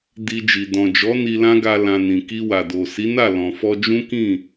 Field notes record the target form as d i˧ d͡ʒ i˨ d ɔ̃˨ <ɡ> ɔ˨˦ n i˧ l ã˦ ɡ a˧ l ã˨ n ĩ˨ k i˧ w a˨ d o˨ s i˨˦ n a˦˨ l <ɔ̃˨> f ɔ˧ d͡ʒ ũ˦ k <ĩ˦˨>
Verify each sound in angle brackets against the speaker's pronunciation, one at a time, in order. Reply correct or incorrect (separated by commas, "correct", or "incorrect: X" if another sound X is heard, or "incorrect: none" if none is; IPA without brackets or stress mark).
incorrect: d͡ʒ, correct, correct